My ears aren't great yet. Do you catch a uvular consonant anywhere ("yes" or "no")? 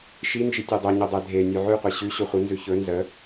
yes